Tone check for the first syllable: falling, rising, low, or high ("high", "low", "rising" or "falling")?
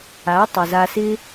rising